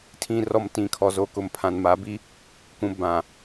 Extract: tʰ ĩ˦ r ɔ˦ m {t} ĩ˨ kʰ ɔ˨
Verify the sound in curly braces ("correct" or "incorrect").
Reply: correct